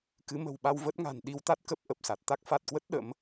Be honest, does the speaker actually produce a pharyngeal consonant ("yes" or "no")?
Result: no